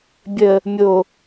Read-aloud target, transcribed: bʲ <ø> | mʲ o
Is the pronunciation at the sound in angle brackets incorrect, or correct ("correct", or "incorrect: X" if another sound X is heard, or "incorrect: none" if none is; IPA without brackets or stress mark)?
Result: incorrect: ə